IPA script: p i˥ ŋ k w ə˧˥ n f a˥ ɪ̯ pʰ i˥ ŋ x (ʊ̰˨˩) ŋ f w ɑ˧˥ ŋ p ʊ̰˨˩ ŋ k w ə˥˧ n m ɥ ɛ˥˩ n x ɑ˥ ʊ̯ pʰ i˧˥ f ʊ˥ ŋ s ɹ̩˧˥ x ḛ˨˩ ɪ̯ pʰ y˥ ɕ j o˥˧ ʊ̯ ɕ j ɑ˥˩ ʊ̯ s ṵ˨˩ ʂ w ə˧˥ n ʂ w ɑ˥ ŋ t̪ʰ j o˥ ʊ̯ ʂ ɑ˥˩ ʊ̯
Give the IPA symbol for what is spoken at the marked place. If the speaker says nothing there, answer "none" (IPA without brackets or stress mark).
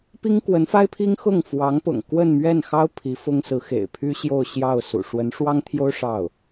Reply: ʊ˥˩